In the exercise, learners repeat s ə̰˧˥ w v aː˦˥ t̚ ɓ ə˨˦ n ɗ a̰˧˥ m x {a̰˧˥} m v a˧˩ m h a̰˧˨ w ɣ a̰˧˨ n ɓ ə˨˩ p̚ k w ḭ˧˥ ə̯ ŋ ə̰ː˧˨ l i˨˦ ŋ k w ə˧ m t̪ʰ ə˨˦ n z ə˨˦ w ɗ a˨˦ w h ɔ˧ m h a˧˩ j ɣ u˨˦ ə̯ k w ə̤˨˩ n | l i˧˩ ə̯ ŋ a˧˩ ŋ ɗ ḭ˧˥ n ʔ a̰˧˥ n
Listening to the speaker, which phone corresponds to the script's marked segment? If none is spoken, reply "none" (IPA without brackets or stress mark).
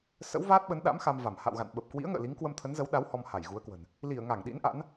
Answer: a˧